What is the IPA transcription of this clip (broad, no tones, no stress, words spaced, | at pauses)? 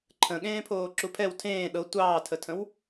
ǃʰə̃ ɠẽːpʰoːǁupʰɛw tʰẽː ɗɤ tʷɑːtʰətʰə̃w